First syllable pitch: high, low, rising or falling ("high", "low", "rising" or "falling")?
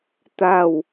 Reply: falling